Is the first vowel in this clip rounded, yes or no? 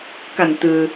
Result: no